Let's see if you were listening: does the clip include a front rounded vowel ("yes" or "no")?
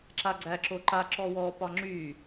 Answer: yes